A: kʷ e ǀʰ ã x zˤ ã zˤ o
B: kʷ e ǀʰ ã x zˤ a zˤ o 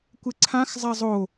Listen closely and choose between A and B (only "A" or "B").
B